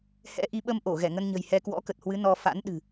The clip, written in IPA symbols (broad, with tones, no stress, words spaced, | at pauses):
hɛ̰˧˥ ʔi˨˦ɓə˧mʔo˧˩ ɣɛ˧˩ŋə˧nɲə̤˨˩j hɛ˧kwɔ̰˧˥kə˨˩t̚hwɨ˨˦ nɔ˧ fa̰˧˥nɗɨ̤˨˩